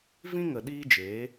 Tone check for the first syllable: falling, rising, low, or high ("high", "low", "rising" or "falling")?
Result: high